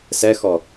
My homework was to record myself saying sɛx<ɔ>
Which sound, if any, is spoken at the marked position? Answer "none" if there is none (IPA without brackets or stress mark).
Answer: ɔ